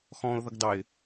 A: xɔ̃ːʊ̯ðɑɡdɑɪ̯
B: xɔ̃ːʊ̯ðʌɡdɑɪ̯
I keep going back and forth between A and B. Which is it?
B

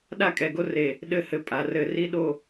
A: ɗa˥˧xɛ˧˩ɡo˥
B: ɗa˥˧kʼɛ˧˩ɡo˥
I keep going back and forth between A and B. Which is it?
B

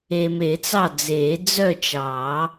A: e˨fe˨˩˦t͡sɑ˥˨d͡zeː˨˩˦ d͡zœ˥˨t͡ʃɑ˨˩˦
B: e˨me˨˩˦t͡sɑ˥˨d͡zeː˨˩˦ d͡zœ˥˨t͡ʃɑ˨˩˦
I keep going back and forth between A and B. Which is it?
B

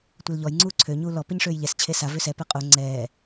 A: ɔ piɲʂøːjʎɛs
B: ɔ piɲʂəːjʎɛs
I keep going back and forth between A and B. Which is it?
A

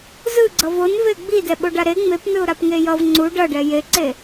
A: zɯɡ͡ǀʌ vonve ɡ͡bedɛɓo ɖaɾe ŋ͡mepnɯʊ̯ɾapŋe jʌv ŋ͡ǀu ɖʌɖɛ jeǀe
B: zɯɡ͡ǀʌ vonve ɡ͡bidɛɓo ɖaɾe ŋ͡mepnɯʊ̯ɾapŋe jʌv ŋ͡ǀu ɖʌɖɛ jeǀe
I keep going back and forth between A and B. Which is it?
B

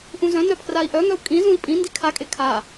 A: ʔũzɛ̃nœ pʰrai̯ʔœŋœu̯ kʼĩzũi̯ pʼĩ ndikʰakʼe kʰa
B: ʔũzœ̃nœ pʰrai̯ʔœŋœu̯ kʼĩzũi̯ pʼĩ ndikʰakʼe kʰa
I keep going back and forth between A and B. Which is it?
B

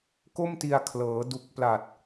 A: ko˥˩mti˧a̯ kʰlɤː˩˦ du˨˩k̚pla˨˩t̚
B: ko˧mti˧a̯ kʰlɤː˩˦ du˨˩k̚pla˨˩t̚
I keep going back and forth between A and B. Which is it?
A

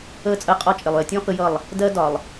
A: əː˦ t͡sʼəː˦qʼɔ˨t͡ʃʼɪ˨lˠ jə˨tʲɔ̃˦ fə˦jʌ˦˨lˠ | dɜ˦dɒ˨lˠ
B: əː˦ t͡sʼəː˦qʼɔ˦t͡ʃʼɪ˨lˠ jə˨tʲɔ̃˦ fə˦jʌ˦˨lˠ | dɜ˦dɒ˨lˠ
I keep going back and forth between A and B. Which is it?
B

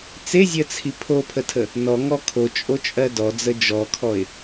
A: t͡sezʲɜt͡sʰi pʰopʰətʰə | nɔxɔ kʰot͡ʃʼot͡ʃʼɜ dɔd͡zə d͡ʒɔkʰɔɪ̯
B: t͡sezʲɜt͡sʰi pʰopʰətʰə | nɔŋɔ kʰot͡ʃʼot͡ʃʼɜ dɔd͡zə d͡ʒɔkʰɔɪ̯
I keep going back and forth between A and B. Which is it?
B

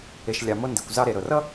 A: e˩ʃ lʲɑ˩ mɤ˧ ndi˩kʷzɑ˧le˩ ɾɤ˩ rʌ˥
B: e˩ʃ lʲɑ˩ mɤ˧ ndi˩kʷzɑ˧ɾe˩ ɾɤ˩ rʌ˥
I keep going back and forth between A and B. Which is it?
B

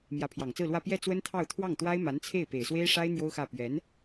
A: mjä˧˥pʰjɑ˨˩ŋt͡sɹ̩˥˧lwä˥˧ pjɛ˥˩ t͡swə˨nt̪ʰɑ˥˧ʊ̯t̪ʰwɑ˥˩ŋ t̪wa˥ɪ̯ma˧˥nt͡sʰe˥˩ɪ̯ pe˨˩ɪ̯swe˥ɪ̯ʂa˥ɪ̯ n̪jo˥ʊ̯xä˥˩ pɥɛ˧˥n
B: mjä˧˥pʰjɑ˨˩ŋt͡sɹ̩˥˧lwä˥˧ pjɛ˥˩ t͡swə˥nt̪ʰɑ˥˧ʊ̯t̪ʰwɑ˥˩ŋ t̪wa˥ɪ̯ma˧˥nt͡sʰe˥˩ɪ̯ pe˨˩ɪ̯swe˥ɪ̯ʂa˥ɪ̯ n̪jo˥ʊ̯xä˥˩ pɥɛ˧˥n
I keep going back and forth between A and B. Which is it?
B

